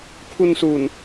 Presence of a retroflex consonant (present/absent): absent